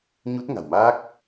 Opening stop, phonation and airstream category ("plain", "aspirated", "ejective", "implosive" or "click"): plain